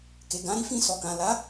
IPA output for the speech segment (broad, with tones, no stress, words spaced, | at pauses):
ke˨ɡã˨˦ɾi˦ fĩ˧sɔ˨kã˨la˨˦